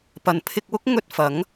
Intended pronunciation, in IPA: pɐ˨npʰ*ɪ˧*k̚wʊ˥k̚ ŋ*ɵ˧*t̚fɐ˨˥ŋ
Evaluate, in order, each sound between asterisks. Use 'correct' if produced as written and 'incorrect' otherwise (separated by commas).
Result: correct, correct